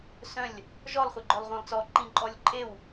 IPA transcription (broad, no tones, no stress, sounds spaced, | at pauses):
s œ̃ lʲ | ʒ ɔ lˠ χʷ e ɡ͡ǃ œ lˠ ʁʷ œ̃ lˠ t͡s ɔ ǃ ĩ ǃʼ ɔ lʲ ǃʼ e w